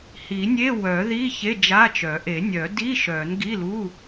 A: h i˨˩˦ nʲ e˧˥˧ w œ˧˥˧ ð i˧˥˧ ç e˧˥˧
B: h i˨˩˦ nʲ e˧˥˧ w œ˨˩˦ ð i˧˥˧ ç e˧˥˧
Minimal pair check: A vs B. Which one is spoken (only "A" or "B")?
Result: B